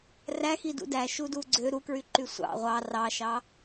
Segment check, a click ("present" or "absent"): present